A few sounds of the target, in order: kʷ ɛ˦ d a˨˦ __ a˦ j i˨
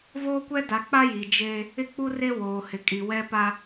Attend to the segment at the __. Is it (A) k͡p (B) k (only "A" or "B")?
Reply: A